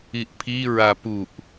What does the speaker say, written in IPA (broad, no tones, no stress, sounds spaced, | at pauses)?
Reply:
i ʔ pʰ i ɹ a p u ʔ